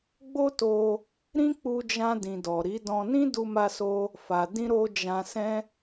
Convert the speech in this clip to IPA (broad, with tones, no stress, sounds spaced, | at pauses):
ɡ͡b o˦ t o˧ | ɾ ĩ˦ k͡p u˧ d͡ʒ ã˧ d ĩ˨ d ɔ˨ ɾ i˨˦ d ɔ̃˧ n ĩ˦ d u˧ m a˧ s o˧ | f a˨ d ĩ˧ ɾ o˧ d͡ʒ ã˧ s ɛ̃˦